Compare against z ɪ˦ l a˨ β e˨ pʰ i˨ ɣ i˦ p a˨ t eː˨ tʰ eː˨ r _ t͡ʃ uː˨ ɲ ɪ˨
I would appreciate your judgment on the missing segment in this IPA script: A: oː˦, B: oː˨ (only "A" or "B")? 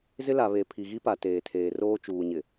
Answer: A